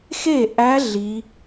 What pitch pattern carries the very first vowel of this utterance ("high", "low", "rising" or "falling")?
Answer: falling